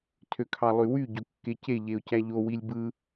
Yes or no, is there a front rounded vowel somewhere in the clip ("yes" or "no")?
yes